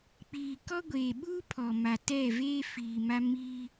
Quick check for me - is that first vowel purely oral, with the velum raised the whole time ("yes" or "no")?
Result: yes